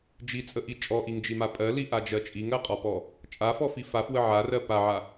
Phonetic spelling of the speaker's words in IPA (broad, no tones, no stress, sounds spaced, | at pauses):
d͡ʒ i t͡sʼ ə ʔ i t͡ʃʼ ɔ ʔ i ŋ d͡ʒ i m a pʼ ɜ l i ʔ a d͡ʒ ɜ t͡ʃʼ i ŋ ɜ qʼ ɔ p ɔ | t͡ʃʼ a f ɔ f i f a f w ə ʕ a r ɜ p a ʕ a